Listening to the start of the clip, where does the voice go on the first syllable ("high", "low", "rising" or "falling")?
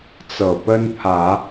low